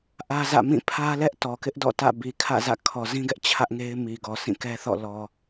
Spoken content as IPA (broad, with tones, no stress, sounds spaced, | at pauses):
ʔ ä˦ z ä̰˦˨ m ĩ˦˨ pʰ ä˦ l ɛ˦ ʔ t ɔ˨ k ɪ˦ ʔ d ɔ̰˦˨ t ä̰˦˨ b i˨ kʰ ä̰˦˨ z ä̰˦˨ kʰ ɔ˨ z ĩ˦ ɡ ɛ˦ ʔ t͡ɕʰ ä˦ ʔ ŋ e˦ ɪ̯ m i˨ ɡ ɔ˨ s ĩ˦˨ k ɛ˦ θ ɔ̰˦˨ l ɔ˨